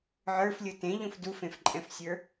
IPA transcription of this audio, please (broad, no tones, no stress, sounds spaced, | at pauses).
ʕ ə˞ f lʲ ɯ t ẽ ʎ ũ f d u f ẽ f ǃʼ ɛ̃ f sʲ ə˞